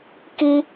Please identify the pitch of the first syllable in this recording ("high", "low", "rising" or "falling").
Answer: high